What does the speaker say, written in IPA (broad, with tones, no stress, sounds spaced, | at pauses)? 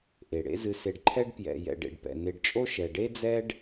ʔ e˩ ɽ ḛ˦ z ɨ˨ s e˨ ɖ ǃʰ ɛ˦ ɖ p j ɛ̰˨ j ɛ̰˨ ɖ ḛ˨ ɖ p ɛ̰˩ n e˨ ɖ t͡ʃʼ o˦ ʃ ɛ˨ ɖ e˥ d͡z ɛ˥ ɖ